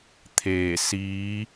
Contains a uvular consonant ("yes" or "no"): no